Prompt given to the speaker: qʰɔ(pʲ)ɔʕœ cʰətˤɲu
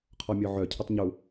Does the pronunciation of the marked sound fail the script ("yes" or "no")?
yes